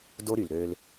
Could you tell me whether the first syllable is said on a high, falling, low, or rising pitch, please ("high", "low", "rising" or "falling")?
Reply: high